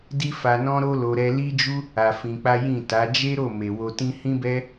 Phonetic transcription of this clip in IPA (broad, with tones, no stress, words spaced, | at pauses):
di˦fa˧nɔ̃˦ ɾo˦lo˧ ɾɛ˧li˦d͡ʒu˦ | a˧fĩ˧k͡pa˦ jĩ˦˨ta˨˦ d͡ʒe˦ɾo˦˨ me˨wo˧tĩ˦ hĩ˦bɛ˦